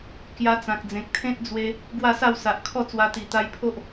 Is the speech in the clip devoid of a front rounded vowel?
yes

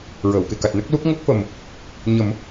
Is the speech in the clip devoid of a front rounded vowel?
yes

